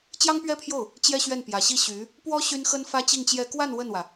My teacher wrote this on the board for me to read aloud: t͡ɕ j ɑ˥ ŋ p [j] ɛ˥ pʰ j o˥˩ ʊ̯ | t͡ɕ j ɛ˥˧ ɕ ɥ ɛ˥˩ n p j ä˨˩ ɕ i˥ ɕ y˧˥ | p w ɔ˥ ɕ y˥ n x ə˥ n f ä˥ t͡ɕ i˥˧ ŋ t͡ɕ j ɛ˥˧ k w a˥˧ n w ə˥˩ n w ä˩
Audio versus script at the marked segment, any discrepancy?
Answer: yes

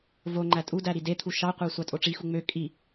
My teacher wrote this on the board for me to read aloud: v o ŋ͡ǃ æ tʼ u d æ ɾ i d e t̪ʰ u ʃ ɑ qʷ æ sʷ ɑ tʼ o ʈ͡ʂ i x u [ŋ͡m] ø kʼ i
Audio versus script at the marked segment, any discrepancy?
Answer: no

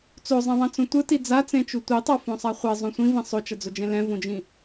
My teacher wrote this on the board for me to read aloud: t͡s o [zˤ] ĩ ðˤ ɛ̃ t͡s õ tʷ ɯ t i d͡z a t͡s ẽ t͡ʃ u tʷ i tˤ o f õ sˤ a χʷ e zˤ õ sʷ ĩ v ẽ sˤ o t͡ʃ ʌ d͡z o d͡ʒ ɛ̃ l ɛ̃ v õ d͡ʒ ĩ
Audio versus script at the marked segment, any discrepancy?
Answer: no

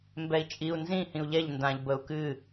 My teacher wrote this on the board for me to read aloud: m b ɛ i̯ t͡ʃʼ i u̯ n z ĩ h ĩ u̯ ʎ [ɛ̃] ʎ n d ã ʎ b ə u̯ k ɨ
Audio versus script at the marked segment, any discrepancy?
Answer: yes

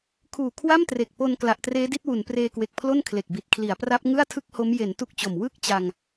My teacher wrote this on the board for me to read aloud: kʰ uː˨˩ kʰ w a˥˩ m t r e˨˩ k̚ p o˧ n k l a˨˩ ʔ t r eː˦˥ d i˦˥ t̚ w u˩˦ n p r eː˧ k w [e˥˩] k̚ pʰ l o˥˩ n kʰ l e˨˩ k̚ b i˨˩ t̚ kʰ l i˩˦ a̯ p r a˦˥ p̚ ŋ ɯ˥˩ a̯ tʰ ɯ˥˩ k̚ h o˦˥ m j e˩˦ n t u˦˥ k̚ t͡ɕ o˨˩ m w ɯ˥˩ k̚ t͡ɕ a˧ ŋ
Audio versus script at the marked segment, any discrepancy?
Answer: yes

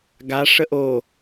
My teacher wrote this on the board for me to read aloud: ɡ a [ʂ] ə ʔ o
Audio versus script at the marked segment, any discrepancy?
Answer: no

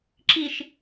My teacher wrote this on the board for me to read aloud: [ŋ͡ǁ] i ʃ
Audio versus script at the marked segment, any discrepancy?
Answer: yes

